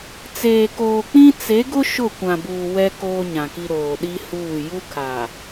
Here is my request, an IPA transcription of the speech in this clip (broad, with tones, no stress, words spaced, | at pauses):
t͡seː˨koː˨k͡pĩ˦ t͡se˨˦ɡʊ˦ ʃʊ˦˨kʷã˨buː˨ wɛ˦ koː˦ɲã˨ki˦ ɾoː˨ɗi˦huː˦˨ ju˦kʰa˨